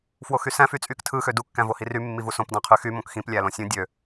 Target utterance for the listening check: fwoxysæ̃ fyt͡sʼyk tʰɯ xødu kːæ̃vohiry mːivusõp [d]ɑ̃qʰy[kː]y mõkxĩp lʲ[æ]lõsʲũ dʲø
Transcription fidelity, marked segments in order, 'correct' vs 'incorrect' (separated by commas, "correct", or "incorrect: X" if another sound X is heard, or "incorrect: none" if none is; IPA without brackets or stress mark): correct, incorrect: x, correct